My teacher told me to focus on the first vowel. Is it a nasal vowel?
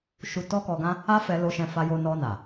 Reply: no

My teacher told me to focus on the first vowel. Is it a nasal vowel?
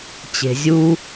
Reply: no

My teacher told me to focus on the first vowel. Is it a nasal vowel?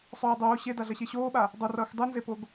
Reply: no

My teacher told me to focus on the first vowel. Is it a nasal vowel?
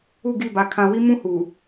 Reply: no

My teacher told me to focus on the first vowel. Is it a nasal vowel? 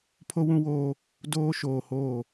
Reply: no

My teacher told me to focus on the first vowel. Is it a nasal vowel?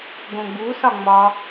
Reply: yes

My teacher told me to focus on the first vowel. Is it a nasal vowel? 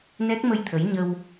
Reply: no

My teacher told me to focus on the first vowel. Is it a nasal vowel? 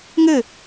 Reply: no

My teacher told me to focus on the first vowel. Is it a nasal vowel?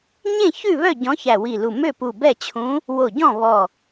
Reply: yes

